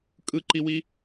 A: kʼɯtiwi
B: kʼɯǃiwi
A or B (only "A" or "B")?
B